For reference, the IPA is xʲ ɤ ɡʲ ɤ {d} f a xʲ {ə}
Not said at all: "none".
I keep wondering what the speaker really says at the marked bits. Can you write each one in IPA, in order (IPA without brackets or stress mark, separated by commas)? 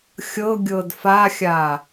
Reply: d, a